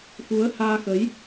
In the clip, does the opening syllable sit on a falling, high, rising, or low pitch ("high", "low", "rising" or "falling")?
rising